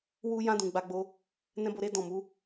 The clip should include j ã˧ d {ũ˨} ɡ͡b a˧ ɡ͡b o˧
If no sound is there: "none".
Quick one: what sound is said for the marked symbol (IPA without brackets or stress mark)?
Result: ũ˨